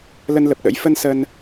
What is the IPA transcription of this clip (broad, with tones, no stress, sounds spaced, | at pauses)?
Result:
l ə˧ n l ə˨˩ p̚ ɗ ə̰˧˥ j f ə˧ n s ə˧ n